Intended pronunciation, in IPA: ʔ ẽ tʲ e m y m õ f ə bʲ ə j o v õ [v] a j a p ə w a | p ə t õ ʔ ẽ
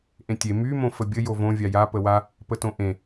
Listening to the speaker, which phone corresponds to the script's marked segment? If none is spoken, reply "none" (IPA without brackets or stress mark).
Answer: vʲ